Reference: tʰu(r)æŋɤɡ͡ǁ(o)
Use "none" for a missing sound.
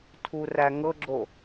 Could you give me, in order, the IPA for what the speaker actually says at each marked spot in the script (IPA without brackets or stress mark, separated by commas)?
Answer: r, o